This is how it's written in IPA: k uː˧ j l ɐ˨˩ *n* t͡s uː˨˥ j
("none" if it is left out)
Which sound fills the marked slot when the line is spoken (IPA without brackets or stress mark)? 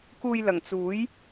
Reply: ŋ